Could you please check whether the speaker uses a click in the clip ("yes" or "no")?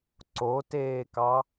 yes